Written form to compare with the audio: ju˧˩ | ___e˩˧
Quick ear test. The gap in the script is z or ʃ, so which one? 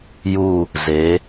z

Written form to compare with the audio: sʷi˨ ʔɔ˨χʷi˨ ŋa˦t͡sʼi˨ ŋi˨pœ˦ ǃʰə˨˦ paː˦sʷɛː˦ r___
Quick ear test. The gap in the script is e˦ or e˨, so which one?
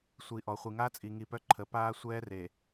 e˨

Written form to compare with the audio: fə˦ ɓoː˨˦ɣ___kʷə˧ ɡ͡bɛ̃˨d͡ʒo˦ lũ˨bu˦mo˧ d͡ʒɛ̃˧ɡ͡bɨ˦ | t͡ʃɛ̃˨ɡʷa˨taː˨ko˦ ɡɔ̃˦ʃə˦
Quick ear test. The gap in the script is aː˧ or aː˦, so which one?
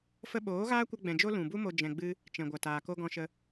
aː˦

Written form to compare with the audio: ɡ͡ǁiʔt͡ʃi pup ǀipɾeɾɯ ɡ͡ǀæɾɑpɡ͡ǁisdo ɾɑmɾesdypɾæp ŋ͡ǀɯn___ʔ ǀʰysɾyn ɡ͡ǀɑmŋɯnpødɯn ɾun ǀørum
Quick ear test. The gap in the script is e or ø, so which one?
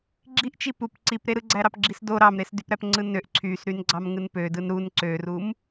ø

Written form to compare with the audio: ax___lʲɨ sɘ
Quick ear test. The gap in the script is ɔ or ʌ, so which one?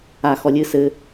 ɔ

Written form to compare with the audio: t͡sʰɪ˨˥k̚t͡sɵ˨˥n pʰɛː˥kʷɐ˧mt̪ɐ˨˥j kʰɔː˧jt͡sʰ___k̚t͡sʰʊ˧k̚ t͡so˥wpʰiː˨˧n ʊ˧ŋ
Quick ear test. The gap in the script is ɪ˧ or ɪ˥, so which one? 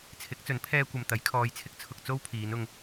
ɪ˥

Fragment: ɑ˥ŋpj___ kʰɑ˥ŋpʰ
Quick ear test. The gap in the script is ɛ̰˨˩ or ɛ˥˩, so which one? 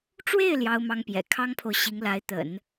ɛ̰˨˩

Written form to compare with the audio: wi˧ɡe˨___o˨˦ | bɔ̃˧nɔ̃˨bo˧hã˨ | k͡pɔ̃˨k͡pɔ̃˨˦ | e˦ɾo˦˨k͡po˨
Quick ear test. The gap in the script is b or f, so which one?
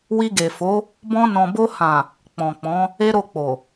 f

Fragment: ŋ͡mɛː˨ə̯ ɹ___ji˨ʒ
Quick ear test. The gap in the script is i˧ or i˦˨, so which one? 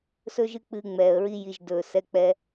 i˧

